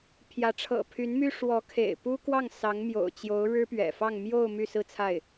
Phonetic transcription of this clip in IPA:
pʰ j ä˧˥ ʈ͡ʂʰ ɤ̰˨˩ pʰ y˧˥ n m y˥ ʂ w ɔ˧˥ kʰ ḛ˨˩ ɪ̯ p u˥ k w ɑ˥˩ ŋ s ɑ˧˥ ŋ m j o̰˨˩ ʊ̯ t͡ɕ j o˧˥ ʊ̯ ɻ ɻ̩˥ p ɥ ɛ̰˨˩ f ɑ˥˧ ŋ m j o˥˧ ʊ̯ m y˥˧ s ɹ̩˥˧ t͡sʰ a˥˩ ɪ̯

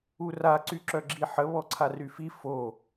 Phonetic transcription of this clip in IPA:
u r a ǀ y ǁ œ ɡ͡ǁ i ħ ə β ɔ ǀʰ a r y f i f o

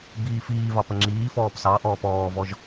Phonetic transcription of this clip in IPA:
b iː f iː v ɑ p ə ŋ͡ǁ iː f ɔː p s ɑ ʔ ɔː p ɔː v ɔ ʒ

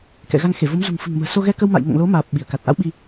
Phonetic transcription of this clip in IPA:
k ɛ̰˧˨ ɣ a˧ ŋ x e˧˩ v o˨˦ m z ṳ˨˩ ŋ f ɨ̤˨˩ ŋ m ə̤ː˨˩ s o˧ ɣ ɛ˧ k ə˧ w m a̰˧˨ j ŋ o̰˧˨ ŋ l o˨˦ m aː˨˩ p̚ ɓ i˧˩ ə̯ k a˨˩ t̚ ʔ a̰˧˥ w ɓ i˧

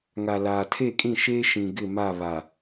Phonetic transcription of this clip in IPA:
ŋ a˨ l aː˨ tʰ e˦˨ kʼ ĩ˦˨ ʃ eː˦ ʃ ĩ˨ ɡ ɪ˦˨ m a˦˨ β a˨

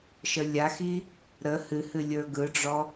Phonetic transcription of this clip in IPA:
ʃ ə lʲ a x i | ɾ ə h ɨ h ɨ lʲ ə˞ ɡ ɯ ɖ͡ʐ ɔ

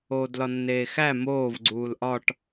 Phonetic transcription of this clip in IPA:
oː d l ɒ nː eː x æ m oː v ɡ͡ǀ uː l ʔ ɒ ʈ

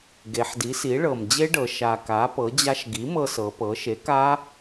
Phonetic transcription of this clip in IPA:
ɡ e˩˧ ħ d i˩˥ s i˩˥ ɭ ɤ˨˩ m d͡ʑ e˦˥ ɖ ɤ˩˧ ʃ a˨˩ k a˩˥ p ɤ˩˥ d͡ʑ a˦˥ ʃ ɡ i˩˥ m ɤ˧ s ɤ˩˧ p ɤ˩˥ ʃ e˩˥ k a˦˥

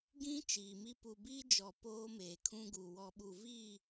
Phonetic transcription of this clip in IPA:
ɡ ĩ˦ t͡ʃ iː˨ m i˦ p u˨ b iː˦ d͡ʒ ɔ˨ p oː˦ m eː˨ kʰ ũ˦ ɡ u˨ w ɔ˨ ɓ u˨ v iː˦˨

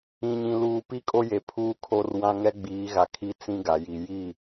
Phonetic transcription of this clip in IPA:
ĩ˨ ɲ ĩ˨ l uː˨ p i˦ kʼ o˦ j e˨ pʰ uː˦ kʰ o˦ r w ã˦ ŋ ɛ˦ ɡ͡b iː˨˦ ɣ a˨ kʰ i˦ t͡s ĩ˦ ɡ a˨ j i˨ j i˦˨

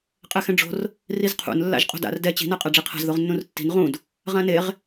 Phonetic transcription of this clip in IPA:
qʼ ɛ x ɛ̃ ɖ͡ʐ o̤ r | r i z qʰ ṵ n lː a̰ ʒ qʼ o̤ d a̰ r d ɛ t͡ɕ i̤ n a qʼ a ɖ͡ʐ i qʰ a̤ z ð o ʁ nː ũ r tː i̤ n ʁ ũ d | ʁ ã n e ʁ

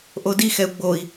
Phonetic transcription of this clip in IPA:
ʔ o d i x ɛ u̯ ɡ͡b o i̯

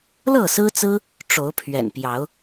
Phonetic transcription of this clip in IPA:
l ɤ˥˨ s ɹ̩˦ t͡s ɹ̩˦ | ʈ͡ʂ o˨˦ ʊ̯ pʰ ɥ ɛ̰˨˩ n p j ɑ˨˦ ʊ̯

